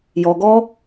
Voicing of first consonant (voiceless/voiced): voiced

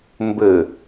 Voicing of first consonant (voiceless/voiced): voiced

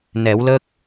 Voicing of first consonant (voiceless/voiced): voiced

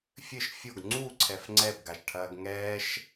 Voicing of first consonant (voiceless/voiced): voiceless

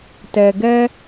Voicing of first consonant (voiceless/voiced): voiceless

